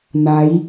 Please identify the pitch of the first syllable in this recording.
rising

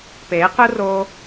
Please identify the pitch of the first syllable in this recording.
rising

